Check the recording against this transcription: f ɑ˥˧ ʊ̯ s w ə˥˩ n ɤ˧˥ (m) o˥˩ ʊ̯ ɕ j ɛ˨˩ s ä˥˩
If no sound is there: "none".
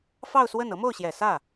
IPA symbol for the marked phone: m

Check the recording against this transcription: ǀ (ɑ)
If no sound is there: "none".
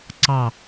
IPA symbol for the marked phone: ɑ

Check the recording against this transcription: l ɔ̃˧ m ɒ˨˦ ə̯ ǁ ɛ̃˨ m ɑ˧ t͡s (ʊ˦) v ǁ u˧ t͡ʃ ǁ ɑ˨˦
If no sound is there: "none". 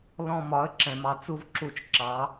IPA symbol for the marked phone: u˦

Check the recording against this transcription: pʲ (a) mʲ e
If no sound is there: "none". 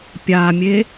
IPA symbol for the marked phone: a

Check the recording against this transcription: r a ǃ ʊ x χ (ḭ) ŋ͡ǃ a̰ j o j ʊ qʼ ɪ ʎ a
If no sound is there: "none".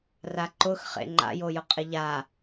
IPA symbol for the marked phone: ḛ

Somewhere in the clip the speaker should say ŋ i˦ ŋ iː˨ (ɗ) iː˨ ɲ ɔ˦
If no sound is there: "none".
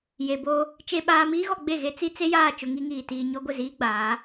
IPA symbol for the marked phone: t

